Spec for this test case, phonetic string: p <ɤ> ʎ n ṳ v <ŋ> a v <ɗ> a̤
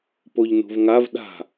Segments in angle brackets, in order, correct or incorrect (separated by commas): incorrect, correct, correct